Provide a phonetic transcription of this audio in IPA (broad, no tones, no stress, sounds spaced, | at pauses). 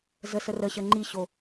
z ə s ə r ə ɕ ə ŋ͡ǃ i ɕ o